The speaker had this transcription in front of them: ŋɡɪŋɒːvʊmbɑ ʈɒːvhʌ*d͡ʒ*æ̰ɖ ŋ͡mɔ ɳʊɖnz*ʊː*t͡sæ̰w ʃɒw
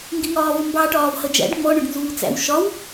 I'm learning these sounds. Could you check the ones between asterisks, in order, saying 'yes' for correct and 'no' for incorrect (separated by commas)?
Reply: yes, no